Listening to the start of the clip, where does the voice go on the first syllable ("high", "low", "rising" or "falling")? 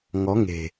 rising